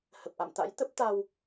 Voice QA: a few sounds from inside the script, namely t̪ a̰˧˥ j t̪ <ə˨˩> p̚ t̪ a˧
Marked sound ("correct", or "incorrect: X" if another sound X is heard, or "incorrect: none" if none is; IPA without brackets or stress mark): incorrect: ə˦˥